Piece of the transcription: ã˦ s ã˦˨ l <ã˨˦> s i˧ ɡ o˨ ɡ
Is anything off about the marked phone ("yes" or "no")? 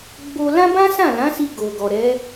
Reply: no